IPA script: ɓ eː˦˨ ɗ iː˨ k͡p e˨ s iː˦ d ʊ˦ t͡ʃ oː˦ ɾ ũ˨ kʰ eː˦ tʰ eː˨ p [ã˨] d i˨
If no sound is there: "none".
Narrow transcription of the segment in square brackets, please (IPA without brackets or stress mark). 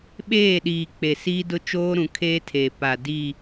a˨